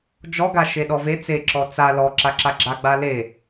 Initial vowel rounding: rounded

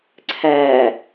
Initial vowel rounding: unrounded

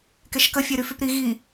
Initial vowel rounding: unrounded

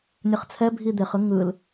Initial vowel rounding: unrounded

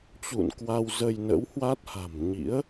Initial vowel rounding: rounded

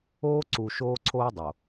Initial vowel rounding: rounded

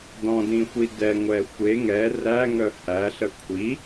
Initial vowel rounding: rounded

